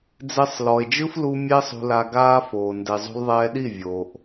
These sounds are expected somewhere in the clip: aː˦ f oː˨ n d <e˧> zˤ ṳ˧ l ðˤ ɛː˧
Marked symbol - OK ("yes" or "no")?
no